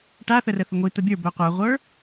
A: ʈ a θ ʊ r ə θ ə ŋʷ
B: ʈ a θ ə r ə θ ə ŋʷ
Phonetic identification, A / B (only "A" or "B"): B